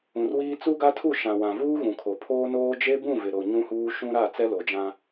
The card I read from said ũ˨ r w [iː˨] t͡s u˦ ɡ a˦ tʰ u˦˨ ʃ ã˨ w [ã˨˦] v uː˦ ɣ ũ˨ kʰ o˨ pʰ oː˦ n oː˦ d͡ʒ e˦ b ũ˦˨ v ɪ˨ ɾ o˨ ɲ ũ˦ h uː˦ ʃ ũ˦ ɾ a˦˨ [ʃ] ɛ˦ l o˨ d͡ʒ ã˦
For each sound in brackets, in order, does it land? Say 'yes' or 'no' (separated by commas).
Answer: no, no, no